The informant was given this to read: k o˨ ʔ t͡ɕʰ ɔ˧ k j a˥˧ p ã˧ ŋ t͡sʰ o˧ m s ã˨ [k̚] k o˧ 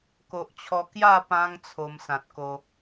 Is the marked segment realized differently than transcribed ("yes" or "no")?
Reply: yes